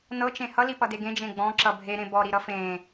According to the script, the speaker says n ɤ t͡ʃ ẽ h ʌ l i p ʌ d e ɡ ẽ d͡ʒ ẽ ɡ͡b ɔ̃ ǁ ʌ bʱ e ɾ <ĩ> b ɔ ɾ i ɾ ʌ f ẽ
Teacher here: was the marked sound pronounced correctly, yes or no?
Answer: no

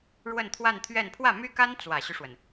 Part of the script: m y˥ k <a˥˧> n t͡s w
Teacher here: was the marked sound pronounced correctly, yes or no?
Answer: no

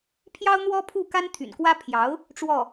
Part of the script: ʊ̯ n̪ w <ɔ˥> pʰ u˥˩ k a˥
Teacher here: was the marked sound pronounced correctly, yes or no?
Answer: yes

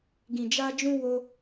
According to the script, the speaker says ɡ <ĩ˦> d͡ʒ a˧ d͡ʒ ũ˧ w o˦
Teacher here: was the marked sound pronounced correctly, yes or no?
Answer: no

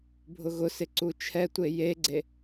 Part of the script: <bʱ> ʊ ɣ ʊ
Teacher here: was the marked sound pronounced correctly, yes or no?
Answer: yes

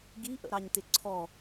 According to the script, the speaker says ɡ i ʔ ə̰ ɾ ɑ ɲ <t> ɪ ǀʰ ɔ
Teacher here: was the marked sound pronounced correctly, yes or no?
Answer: yes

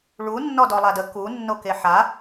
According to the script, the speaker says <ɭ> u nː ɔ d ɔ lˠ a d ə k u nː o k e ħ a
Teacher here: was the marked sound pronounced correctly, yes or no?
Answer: yes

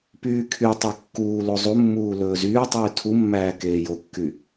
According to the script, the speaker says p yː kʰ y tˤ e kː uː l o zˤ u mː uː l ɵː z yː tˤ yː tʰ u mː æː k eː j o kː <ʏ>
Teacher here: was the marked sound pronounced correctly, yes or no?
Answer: no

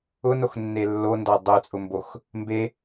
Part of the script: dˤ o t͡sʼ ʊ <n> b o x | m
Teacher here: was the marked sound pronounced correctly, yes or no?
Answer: no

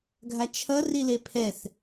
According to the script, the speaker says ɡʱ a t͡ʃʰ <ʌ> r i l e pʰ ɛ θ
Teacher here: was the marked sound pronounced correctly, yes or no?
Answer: yes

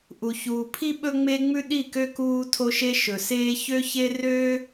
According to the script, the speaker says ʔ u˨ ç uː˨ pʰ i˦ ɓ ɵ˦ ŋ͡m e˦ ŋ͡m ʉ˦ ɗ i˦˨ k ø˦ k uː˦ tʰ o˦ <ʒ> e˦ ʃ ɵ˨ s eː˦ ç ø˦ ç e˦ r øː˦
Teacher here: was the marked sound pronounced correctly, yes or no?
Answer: no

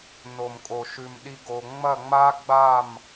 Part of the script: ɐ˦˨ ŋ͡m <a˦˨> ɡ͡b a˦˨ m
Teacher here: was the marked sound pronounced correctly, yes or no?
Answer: no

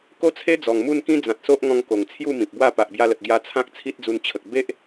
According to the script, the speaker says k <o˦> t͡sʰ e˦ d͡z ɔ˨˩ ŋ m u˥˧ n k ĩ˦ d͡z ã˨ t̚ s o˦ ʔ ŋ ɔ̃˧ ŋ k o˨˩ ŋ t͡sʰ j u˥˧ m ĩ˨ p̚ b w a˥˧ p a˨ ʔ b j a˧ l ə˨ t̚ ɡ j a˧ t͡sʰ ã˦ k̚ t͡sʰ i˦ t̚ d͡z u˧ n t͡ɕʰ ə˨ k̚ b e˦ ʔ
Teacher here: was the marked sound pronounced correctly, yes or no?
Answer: yes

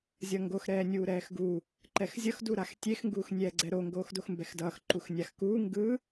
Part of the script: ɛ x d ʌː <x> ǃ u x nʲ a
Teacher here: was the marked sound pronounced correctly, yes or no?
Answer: yes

